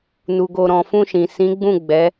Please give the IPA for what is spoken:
n u˨ ɡ o˨ ɾ ɔ̃˨ f ũ˧ ʃ ĩ˨ s ĩ˨˦ ɡ͡b ũ˦˨ ɡ͡b ɛ˨˦

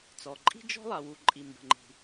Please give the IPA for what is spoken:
t͡s ɔ˩ ǃʼ i̤˥ d͡ʒ ɔ̤˥ lˠ a˩ w u˩ ǃʼ i˩ m b ə̤˩ ŋ͡ǃ i̤˩

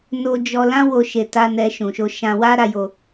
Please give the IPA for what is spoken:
n o˧ d͡ʒ ɔ˧ l ã˦ w o˧ ʃ e˧ t a˦ n ɛ˧ ʃ ũ˨ ʃ o˧ ʃ ã˧ w a˦ ɾ a˧ j o˧

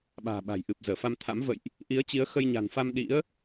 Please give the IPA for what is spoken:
ɓ a̤ː˨˩ ɓ a̤˨˩ j ʔ ɨ˨˩ p̚ z əː˧˩ f a˧ m t̪ʰ a̰˧˥ m v ə̰˧˨ j ʔ | ʔ i˨˦ ə̯ t͡ɕ i˨˦ ə̯ x ə˧ j ɲ a̤˨˩ n f a˧ m ɗ ḭ˧˥ ə̯

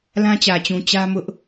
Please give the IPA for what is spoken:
l ã˦ t͡ɕ ä˨ t͡ɕ ũ˨ t͡ɕ ä˦ m ʊ˦ ʔ

